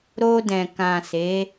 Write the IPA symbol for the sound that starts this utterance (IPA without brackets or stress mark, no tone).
ɾ